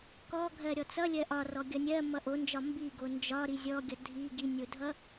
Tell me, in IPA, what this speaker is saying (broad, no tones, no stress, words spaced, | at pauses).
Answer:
kɔɡʱɜ ɾʲɔt͡sʌlʲɜ ʔɒrɔ ɡʲʌnʲɜ mʌʔond͡ʒɒ mbi ɡond͡ʒɒɾi zʲɔɡʲʌ dʱi ɡinʲodʱʌ